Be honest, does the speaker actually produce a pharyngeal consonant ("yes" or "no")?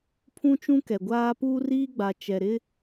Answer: no